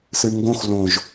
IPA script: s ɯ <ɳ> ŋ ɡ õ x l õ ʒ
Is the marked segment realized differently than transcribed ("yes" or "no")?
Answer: no